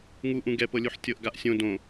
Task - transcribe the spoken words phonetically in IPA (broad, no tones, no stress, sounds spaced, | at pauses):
ŋ u ʔ ũ ɡ ɛ p ɤ lʲ u ħ tʲ ɤ ʔ ɡ a ʔ sʲ õ d õ